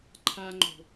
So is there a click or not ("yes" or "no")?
yes